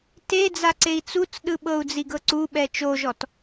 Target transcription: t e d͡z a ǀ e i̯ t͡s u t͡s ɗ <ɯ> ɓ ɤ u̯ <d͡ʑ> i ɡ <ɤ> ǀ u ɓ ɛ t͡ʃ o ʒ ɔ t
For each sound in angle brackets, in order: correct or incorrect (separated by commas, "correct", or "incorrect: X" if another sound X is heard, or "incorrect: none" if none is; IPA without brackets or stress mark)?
correct, incorrect: d͡z, correct